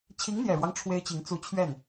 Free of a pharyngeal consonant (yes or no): yes